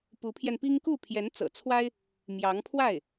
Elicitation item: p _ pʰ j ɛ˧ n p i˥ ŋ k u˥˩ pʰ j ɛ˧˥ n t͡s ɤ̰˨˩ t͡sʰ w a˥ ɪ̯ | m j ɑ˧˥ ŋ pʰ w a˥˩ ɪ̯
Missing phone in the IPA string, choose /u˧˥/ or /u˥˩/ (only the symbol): u˧˥